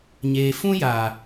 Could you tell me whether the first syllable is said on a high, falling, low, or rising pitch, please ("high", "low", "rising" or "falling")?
low